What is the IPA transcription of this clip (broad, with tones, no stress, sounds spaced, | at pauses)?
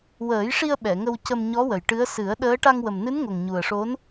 w əː˨˩˦ j ʂ i˧ ə̯ ɓ ɛ˨˩˨ ŋ ə˧ w c ə˧ m ɲ ɔ˧˥ w ə˨˩ j ʈ ɨ˧˥ ə̯ s ɨ˨˩˦ ə̯ ɗ əː˧˥ ʈ a˧ ŋ w ə˨˩ m n ɨ˧˥ n ŋ o˨˩ ŋ ɲ u˨˩ ə̯ ʂ o˧˥ n